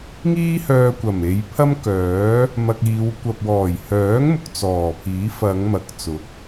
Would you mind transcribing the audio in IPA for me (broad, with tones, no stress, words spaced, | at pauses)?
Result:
ŋiː˥hœː˧kʷɐ˨˩m e˨˧jpʰɐ˥mkœː˨˥ | mɐ˧k̚iː˨˧w kʷɐ˨p̚wɔː˨˩jhœː˨˥ŋmʊ˨k̚ t͡sɔː˨˩pʰiː˨˥ fɐ˨˧ŋ mɐ˨˥k̚t͡sʊ˨˥k̚